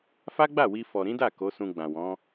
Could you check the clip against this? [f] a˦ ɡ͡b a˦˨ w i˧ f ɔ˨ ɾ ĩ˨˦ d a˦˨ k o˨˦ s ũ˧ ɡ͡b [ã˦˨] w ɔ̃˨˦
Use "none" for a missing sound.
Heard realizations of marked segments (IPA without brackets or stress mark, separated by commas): f, ã˨